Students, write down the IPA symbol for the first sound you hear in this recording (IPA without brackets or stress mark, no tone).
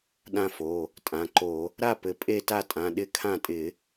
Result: ɗ